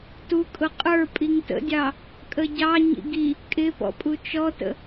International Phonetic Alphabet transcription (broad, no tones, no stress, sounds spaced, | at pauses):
t u kʼ ʊ qʼ ə˞ pʼ i ŋ t ə̰ dʲ ɑ | kʼ ə ɟ ɑ ɲ ḭ ɡ i | kʼ ɪ p ɔ̰ pʼ u t͡ʃ ɔ t ə̰